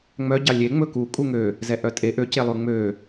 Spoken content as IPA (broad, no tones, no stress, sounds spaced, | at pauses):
ŋ͡m œ ɟ ɑ lʲ e ŋ͡m ɵ k u kʼ u ŋ ø | z ɛ ʔ œ tʼ e ʔ ø c e lˠ ʉ ŋ͡m ø